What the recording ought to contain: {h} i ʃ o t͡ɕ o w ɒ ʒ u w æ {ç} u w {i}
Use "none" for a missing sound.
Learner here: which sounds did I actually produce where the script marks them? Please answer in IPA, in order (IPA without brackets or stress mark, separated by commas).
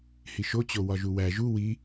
h, ʒ, i